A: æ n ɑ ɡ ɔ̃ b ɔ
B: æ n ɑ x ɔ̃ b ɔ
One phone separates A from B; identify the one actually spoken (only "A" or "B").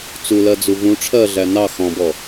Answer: B